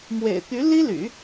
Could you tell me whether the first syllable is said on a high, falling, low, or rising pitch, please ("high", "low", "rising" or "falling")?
low